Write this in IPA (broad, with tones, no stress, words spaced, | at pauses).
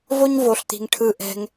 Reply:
vo˦ɲvo˧ɬt̪i̤˧ŋ ʈʰɯ˧ʔɛ̤˧ŋ